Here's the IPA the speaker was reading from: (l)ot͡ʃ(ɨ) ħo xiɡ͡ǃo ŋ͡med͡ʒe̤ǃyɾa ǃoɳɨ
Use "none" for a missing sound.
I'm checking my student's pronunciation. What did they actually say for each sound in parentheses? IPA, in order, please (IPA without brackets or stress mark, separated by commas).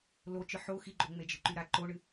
l, ɨ